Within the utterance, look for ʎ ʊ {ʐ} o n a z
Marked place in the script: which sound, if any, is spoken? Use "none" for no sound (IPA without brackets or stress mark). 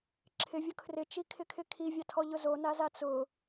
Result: z